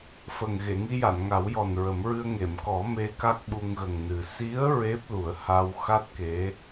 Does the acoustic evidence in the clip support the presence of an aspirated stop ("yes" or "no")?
no